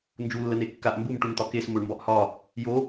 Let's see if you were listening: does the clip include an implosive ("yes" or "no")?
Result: no